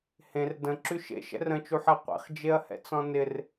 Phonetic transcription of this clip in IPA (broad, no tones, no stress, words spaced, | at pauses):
hẽr də̃ǁy ʃḛʃɛ̰r ə̃t͡ʃuħɛ qʷḛχd͡ʒeɐ̯hɛ̰t͡sɔ̃ nɪr